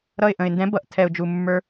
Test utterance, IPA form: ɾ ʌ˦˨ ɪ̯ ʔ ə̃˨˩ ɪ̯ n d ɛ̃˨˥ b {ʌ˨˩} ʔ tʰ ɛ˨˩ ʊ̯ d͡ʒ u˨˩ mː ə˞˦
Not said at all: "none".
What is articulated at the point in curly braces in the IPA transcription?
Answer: ʌ˨˩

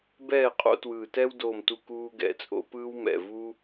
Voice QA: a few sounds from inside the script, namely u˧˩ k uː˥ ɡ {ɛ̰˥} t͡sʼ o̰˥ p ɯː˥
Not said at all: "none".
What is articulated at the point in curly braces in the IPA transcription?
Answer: ɛ̰˧˩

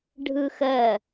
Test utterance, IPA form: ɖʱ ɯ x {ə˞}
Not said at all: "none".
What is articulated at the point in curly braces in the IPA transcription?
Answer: ɜ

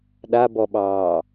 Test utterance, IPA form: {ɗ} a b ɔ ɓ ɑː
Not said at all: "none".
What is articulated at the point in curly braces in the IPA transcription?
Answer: ɗ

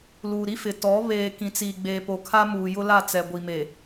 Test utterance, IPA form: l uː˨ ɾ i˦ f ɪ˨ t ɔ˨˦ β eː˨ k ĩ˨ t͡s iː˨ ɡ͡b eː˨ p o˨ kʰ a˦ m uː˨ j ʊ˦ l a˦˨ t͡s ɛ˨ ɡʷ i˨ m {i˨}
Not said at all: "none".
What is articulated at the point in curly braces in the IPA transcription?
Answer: e˨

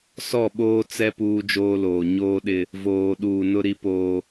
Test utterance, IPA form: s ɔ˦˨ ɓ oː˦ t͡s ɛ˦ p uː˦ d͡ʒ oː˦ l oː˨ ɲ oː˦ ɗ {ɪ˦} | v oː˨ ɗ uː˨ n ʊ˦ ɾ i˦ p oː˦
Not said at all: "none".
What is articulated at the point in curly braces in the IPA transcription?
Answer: ɪ˦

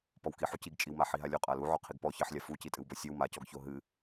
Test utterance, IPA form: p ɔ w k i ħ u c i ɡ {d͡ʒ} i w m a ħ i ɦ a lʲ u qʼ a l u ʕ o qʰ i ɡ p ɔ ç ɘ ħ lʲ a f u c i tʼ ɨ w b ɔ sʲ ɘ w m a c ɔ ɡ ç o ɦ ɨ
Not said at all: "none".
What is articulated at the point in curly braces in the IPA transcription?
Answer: t͡ʃʼ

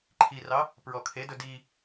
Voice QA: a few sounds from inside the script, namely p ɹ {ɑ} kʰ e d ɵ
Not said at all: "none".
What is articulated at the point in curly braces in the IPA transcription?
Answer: ɔ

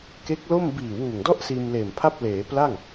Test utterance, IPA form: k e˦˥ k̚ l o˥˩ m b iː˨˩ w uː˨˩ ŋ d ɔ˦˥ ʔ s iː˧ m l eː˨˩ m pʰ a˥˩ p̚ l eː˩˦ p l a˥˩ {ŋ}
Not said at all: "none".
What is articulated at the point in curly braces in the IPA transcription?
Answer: ŋ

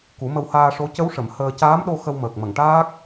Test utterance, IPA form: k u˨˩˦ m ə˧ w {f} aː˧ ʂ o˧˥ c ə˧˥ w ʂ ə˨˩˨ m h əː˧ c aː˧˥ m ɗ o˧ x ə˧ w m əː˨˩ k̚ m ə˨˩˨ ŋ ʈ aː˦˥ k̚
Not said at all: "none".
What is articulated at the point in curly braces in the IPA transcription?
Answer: h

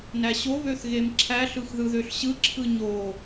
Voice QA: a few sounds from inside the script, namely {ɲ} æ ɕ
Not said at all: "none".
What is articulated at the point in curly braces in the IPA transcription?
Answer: n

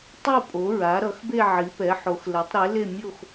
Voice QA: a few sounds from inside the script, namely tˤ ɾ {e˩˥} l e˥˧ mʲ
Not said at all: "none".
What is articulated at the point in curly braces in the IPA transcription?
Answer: e˩˥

